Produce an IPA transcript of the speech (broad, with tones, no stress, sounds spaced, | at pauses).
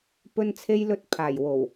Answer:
p ɵ˧ n t͡sʰ e˧ j l ɵ˧ t̚ pʰ aː˨˩ j w o˨˩ w